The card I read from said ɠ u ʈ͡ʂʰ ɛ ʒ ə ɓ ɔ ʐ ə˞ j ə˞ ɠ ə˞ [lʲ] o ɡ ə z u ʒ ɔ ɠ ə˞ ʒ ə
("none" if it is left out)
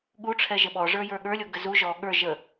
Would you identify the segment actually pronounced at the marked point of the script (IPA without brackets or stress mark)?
lʲ